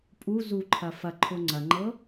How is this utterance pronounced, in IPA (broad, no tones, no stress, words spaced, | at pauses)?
pʼu zuǃʰɐ fɐǃʰʊ ŋ͡ǀɐŋ͡ǃɤ